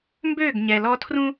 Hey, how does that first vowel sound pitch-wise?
falling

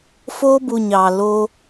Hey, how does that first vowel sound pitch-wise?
high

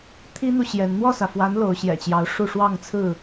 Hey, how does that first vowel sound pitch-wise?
high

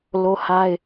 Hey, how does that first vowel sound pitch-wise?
high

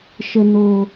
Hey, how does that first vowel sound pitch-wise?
low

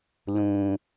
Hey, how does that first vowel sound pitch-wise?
low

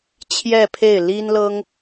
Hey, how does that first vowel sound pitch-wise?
falling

